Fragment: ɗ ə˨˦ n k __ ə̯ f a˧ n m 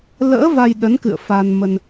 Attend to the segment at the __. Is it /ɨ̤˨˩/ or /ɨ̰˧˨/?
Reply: ɨ̰˧˨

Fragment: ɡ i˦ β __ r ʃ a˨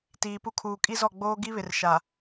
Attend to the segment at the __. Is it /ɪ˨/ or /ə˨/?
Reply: ɪ˨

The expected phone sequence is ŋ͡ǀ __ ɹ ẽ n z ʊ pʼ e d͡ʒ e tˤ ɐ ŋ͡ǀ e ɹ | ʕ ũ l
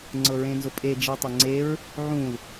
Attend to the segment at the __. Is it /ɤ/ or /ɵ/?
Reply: ɤ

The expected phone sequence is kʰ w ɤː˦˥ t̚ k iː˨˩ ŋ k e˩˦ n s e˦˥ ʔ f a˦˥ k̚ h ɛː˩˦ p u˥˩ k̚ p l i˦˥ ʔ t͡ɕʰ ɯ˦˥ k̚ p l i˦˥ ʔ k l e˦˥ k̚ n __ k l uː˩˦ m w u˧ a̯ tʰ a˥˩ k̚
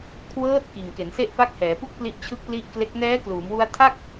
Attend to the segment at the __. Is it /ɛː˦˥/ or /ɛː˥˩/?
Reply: ɛː˦˥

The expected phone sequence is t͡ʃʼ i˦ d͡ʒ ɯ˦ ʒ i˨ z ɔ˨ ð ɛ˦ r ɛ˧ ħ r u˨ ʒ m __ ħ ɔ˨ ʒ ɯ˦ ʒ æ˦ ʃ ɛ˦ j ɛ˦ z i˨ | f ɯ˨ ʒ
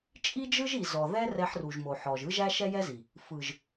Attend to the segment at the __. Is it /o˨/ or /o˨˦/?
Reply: o˨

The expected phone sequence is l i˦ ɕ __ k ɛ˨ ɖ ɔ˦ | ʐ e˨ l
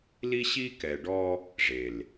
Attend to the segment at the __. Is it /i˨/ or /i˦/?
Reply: i˦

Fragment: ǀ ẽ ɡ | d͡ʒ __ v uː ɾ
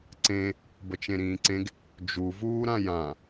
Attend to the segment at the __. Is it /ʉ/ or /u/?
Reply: u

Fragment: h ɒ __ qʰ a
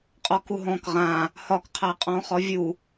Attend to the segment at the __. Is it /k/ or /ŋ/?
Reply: k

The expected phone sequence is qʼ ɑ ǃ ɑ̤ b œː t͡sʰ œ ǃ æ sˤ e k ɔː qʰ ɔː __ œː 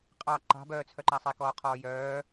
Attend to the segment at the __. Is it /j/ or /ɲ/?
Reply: j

